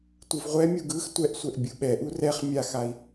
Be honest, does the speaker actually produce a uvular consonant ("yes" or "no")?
yes